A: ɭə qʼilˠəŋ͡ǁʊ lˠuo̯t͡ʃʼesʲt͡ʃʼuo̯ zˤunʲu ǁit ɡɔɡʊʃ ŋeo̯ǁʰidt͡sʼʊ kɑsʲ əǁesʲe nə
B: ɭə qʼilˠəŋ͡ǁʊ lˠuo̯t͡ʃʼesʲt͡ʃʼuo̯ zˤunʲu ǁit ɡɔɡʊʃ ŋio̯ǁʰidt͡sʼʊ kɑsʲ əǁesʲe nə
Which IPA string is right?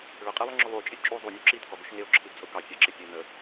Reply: A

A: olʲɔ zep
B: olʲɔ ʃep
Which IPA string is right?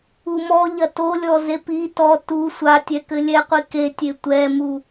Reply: A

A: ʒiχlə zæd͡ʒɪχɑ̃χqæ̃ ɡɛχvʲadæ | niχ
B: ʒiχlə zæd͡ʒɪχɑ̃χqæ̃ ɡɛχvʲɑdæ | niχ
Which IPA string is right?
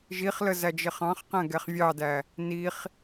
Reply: B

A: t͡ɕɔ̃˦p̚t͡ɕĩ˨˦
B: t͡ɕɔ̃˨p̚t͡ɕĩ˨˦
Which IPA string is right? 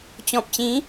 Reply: B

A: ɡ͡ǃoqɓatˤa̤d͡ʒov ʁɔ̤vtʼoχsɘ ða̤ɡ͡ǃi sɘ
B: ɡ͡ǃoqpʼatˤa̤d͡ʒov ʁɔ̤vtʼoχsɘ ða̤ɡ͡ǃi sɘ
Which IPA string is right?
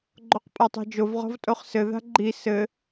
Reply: B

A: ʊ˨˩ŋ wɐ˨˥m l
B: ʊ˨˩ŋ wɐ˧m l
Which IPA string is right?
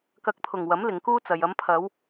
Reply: A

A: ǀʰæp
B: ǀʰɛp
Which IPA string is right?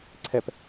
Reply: B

